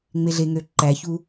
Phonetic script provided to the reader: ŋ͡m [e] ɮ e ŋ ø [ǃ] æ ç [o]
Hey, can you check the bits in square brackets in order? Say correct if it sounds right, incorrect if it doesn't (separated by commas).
correct, correct, incorrect